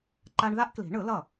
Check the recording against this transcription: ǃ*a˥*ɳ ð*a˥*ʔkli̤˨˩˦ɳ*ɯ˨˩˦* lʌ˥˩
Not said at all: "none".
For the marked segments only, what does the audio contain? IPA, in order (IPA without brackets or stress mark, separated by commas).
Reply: a˥, a˥, ɯ˨˩˦